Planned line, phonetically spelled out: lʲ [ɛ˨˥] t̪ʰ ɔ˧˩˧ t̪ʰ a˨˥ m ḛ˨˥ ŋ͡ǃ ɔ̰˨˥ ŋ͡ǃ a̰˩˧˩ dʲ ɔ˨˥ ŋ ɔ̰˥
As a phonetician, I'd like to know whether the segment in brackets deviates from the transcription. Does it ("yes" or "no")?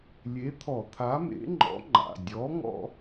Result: yes